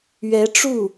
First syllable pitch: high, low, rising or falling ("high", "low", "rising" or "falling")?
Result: rising